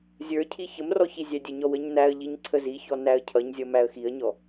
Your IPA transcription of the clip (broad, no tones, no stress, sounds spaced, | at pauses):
zʲ ə˞ cʰ i ç ə m r ɔ ç i zʲ æ dʲ ə ɲ ɔ w ə ɲ n æ ə̯ ʎ i ɲ ǀʰ ə z i ç ɔ n æ ə̯ cʰ ʌ ɲ zʲ ʌ m æ ə̯ x i ə̯ ɲ ɔ